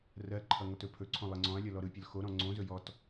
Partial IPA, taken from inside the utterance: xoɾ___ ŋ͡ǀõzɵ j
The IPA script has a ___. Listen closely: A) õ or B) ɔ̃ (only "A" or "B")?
B